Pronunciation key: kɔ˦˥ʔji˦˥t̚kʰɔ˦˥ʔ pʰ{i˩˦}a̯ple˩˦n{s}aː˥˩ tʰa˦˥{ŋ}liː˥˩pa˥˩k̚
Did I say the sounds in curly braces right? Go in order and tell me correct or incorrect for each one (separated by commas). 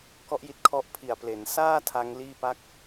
incorrect, correct, correct